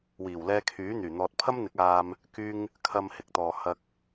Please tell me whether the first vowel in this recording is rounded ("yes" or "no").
no